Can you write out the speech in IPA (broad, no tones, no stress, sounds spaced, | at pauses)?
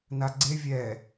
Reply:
n a ɡ͡ǀ e vʲ ɛ